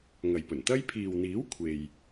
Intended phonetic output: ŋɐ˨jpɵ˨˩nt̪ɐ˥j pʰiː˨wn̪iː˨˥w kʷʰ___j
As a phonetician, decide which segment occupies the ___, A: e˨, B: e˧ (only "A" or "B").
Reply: A